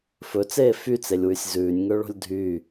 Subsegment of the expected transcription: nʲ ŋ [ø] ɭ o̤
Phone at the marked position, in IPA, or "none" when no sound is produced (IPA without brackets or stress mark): ø